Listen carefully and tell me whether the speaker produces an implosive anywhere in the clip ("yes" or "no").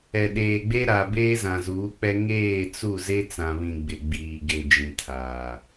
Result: yes